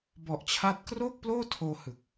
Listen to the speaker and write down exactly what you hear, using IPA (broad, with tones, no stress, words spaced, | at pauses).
bɔ˨˩ʔt͡ɕʰa˦˥t̚ kroː˥˩k̚ploː˥˩tʰoː˧hɯ˨˩k̚